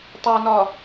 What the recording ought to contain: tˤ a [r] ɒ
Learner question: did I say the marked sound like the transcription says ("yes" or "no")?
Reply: no